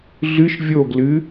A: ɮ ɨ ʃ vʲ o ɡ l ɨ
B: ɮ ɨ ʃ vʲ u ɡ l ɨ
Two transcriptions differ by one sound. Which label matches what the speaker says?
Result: A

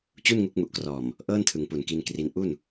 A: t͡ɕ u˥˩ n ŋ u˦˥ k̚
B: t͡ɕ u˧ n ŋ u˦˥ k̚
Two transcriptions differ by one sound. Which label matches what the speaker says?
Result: A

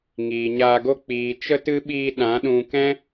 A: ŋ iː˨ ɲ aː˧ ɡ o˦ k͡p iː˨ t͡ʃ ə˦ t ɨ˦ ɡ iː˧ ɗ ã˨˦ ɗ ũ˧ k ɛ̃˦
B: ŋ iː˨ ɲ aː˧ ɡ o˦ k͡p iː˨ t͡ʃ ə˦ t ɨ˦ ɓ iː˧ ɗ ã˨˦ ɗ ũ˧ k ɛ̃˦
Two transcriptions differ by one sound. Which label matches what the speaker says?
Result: B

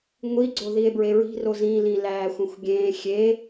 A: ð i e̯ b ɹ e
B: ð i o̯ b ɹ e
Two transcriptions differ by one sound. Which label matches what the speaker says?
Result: A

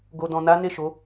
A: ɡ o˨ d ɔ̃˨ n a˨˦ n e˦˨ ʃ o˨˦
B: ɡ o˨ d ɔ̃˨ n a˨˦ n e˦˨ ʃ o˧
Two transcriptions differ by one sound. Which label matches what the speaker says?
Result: A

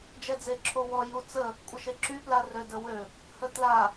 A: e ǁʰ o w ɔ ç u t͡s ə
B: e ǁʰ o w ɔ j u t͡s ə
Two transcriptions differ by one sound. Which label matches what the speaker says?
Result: B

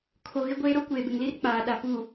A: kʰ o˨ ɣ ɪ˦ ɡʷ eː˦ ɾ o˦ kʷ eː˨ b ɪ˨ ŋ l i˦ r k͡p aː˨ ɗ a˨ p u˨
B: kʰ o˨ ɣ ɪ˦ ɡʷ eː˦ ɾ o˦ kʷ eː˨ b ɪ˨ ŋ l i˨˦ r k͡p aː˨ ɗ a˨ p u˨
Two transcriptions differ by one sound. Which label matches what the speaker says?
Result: A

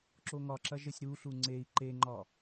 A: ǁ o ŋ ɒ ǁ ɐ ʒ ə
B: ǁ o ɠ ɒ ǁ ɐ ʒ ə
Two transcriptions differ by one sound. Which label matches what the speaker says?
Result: A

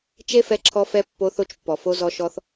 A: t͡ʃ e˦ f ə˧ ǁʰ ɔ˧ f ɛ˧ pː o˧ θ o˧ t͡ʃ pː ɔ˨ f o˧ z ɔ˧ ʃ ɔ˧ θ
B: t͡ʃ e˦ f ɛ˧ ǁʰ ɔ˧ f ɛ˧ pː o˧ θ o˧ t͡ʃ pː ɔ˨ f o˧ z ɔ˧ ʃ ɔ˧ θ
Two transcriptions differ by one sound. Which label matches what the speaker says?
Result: B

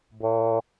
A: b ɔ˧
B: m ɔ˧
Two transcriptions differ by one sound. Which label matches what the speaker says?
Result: A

